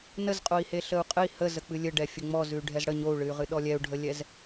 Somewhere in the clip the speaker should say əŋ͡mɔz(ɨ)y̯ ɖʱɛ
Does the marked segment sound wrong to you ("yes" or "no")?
yes